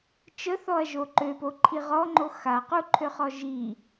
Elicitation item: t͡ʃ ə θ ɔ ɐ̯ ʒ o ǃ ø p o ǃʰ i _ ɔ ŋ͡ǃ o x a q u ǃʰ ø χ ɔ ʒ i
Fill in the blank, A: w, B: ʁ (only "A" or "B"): B